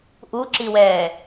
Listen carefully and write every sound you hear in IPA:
ʔuǁiwɛː

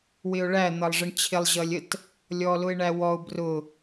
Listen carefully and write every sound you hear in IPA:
wɪʊ̯ɭæ n̪ʌlˠʐəɳt͡ɕʰɪlˠ ʑʌlʲət | lʲɔlʊɪ̯ɳæwɔʊ̯ brʊ

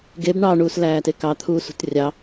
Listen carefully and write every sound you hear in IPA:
ɡeb ɳɑɳuːslæːte kɑt̪ʰuːsṳt rʲɑ

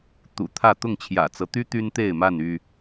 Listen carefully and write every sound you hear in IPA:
t̪ṵ˨˩t̪ʰä˥˨ t̪ʊ˥˨ŋt͡ɕʰjä̰˨˩t͡sɤ˦t̪y˦ t̪y˦nt̪e˥˨ɪ̯ma˥˨n y˥˨

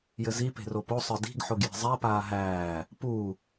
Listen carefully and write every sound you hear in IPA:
jɘzi pe̤ropo sˤə˞di̤ɡ ħoɡje̤zˤæ paːɦæː | pu

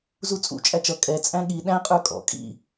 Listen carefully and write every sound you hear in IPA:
zut͡sʼṵ t͡ʃʼæt͡ʃʌ kʼɛ t͡sʼæ̃ɠi ɗæ̃ qʼə˞kʼɔ̰ kʼḭ

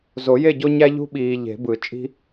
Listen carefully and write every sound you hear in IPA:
zo˨˩˦je˥˨ɟo˦ɲæ˦ ʎṳ˦ɓiː˨ ʎe̤˨˩˦bɯ˨˩˦ t͡ʃʼi̤˦

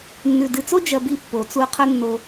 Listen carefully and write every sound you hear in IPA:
nːʉ˨dɨ˨t͡so˦ d͡ʒɐ˧bi˧ pːo˨t͡su˧qʰɵ˦nːo˧

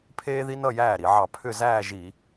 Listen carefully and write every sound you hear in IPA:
pʰeː˥ði˥ nʌ˥˧jæː˥˩ɾi˧˩˧ʕɑ˧˩˧ pʰʏ˥˧ zæː˥˧ʒi˧˩˧

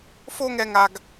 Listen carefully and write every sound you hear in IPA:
fo˥ ŋɛ˥ŋa˥ɡ

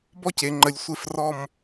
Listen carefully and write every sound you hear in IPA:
bɔ˥ce˩˧ ŋ͡ǃə˩˧lʲ sʷe˧frɔ˧˩m

